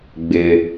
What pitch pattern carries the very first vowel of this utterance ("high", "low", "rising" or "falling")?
low